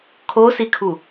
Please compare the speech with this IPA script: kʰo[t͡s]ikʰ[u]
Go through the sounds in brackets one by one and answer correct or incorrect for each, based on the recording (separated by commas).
incorrect, correct